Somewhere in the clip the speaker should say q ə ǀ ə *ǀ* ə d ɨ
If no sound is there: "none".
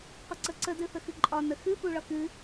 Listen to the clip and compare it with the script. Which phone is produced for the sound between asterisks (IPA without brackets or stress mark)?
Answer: ǀ